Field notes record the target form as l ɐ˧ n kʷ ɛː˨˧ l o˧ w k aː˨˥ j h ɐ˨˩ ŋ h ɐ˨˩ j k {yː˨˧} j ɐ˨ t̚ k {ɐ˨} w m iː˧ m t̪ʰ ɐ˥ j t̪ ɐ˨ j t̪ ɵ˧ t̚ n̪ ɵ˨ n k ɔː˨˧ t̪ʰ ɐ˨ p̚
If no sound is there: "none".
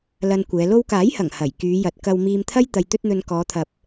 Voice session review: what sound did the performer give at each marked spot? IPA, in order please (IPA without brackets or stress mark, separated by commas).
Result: yː˨˧, ɐ˨